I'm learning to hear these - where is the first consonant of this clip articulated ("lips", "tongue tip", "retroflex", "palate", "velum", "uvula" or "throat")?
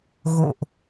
velum